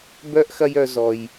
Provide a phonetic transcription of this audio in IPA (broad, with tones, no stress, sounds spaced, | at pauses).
b œ˥ ʔ x ɐ˦ j œ˨ z ɔ˩ j